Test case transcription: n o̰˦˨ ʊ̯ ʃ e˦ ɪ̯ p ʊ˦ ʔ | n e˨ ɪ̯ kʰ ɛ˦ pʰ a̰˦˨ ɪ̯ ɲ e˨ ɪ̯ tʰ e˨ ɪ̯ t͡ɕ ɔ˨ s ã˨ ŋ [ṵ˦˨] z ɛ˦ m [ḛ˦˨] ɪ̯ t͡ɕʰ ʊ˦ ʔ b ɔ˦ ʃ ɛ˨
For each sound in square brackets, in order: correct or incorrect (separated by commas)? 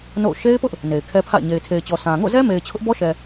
incorrect, incorrect